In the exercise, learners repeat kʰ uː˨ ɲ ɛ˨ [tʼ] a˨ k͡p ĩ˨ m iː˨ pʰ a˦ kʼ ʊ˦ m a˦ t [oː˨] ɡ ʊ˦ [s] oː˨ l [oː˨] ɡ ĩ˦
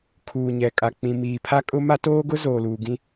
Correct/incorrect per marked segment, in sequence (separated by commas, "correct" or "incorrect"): incorrect, incorrect, incorrect, incorrect